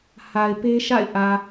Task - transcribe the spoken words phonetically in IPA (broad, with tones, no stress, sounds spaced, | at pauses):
h a˨ ɪ̯ p e˦ ʃ a̰˦˨ ɪ̯ ʔ ä˨